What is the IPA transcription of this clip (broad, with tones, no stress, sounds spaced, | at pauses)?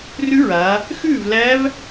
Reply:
r ʉ˦˥ ɹ a˩˧ | x ʉː˥˨ v l æ˦˥ v